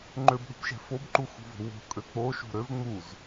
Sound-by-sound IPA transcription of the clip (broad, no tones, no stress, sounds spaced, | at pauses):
ŋ͡ǃ ø b ɗ ṳ b ʃ ɛ̤ f o b ǃ u x ṳ v o̤ w o̤ kʼ ø k͡p o ʃ ṳ ɾ ø v ŋ͡m u z